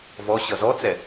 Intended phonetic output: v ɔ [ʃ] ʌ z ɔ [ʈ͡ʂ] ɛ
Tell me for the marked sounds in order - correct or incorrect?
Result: incorrect: ɕ, incorrect: t͡s

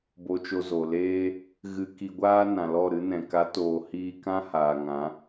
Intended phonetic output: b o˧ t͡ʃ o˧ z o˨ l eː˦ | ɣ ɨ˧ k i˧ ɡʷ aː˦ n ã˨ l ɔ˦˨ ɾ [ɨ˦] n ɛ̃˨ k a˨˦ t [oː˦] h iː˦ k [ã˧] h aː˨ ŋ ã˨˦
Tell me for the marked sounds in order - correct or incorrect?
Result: correct, incorrect: oː˨, incorrect: ã˦

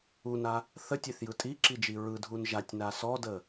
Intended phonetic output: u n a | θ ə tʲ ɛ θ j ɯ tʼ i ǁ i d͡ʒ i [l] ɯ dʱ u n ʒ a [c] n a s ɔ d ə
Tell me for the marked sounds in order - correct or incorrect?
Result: incorrect: ɹ, incorrect: tʲ

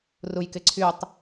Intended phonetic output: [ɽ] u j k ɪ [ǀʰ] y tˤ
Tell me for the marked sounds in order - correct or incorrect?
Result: incorrect: r, correct

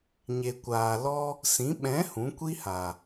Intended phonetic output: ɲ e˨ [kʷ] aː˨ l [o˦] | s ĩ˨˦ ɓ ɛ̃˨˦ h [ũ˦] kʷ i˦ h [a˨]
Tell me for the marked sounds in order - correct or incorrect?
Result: correct, incorrect: ɔ˦, incorrect: ũ˨˦, correct

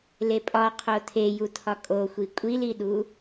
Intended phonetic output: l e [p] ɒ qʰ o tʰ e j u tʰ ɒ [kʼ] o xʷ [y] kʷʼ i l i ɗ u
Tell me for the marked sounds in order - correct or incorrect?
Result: incorrect: pʼ, correct, incorrect: i

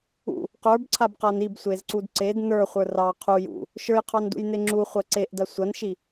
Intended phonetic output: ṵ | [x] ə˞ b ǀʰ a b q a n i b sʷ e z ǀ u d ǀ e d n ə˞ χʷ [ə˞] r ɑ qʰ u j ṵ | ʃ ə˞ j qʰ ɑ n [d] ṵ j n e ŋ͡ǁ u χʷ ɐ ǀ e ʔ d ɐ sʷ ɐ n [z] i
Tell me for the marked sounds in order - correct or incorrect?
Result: incorrect: q, correct, correct, incorrect: ʃ

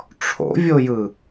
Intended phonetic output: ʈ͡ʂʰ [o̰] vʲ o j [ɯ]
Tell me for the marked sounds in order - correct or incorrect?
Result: correct, correct

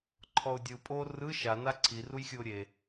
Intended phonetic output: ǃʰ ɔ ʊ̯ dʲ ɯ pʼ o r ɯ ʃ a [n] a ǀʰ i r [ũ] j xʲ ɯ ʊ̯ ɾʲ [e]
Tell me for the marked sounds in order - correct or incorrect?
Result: correct, incorrect: u, correct

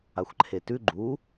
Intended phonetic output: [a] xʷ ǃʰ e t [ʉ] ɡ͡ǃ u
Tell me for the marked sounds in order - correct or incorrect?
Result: correct, correct

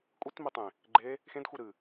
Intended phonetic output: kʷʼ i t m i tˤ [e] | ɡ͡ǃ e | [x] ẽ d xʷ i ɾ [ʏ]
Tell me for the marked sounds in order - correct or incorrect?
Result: incorrect: ẽ, correct, incorrect: ɨ

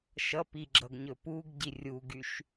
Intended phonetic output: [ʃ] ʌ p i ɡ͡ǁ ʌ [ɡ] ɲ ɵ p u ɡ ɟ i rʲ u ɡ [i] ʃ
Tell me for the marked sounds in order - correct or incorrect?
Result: correct, correct, incorrect: y

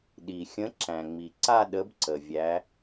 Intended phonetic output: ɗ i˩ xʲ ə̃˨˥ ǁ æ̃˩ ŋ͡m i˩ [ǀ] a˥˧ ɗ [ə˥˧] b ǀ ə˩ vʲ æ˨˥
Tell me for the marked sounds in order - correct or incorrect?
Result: correct, incorrect: ə˨˥

